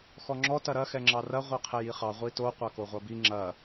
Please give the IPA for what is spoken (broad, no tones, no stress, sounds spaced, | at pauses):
x ɔ ŋ͡ǁ ɔ t ɐ ɾ ɐ x ɛ ŋ͡ǁ ɑ r ɐ ʁʷ ɛ qʰ ɛ j i χ ɑ ʁʷ i t o qʷ ɑ k o ʁʷ ɐ b i ŋ͡ǁ ɐ